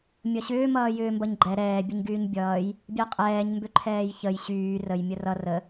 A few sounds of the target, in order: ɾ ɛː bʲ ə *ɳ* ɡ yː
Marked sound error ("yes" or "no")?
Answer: yes